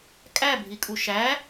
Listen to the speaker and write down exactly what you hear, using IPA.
kʼ æ bʱ i kʼ u ʃ æ

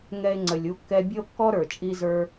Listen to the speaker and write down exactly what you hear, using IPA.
ŋ ɛ˦ e̯ ŋ͡ǀ ə˨ lʲ u˦ kː ɛ˦ bʲ ə˦ o̯ kː ɔ˦ ɾ ə˞˨ t͡ʃʼ i˦ z ə˞˦

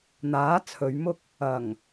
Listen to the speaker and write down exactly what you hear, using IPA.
n̪ aː˨˥ t͡sʰ ɵ˨˧ ɥ m ʊ˥ k̚ | ɐ˨˩ ŋ

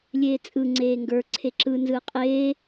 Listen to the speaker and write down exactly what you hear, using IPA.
lʲ eː t͡sʼ ɯ ŋ͡ǀ eː ŋ ɡ ə˞ ǀʰ e ǁ ɯ n z ɯː qʼ eː

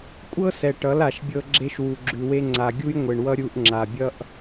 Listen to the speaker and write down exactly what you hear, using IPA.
kʷʼ ɤ˦ s ɛ˨ ʈ ʌ˨˦ l a˨ ʃ bʲ ɤ˧ ɡ͡ǁ e˧ ʃ w u˨ ɡ͡ǁ ʉ˨ w e˧ ŋ͡ǀ a˨ ɡʲ u˧ j ŋʷ e˨ ɳ w ʌ˧ ɾʲ u˧ ʔ ŋ͡ǁ a˨ bʲ ʌ˦ ʔ

